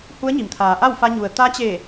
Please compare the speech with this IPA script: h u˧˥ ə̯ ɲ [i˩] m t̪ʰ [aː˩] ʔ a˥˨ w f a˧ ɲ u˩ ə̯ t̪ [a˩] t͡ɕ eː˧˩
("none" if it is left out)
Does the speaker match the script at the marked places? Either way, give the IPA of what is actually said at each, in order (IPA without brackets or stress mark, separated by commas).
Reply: i˩, aː˩˧, a˧˥